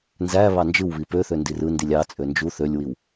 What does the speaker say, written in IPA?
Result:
n z æ β ɑ n d͡ʒ ɯ w β i p ø θ ø n d i r ɯ n d i lʲ ɑ t͡sʼ ø n d͡ʒ u θ ø lʲ w i w

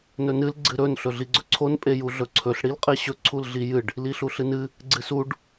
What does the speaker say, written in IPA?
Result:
n ɵ n ɨ l ɡ͡ǀ ɨ ɾ ɵ n ɬ ɵ ɮ i ɡ͡ǀ ɵ ǀʰ o n pʼ e j u ɮ ɵ ǀʰ ɵ ɬ ɽ i l qʼ e ɕ ɵ ǀʰ u l ɮ i j ɨ ɖ | l i ɬ u ɬ ɨ n ɨ | ɡ͡ǀ ɨ s u ɖ

